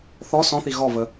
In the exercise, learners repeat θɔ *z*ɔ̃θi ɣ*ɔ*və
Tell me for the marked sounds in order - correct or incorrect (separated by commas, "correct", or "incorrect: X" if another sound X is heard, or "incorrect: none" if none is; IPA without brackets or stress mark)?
incorrect: s, correct